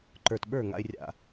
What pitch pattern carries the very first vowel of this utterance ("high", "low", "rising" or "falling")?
low